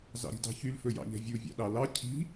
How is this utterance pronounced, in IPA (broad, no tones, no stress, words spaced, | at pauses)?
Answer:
zɑ̰ɾi̤dɑ̤çyl fɵjɑ̰ʎɛ̤vʲu vʲɑ̰ɗɑlɑ cʰi̤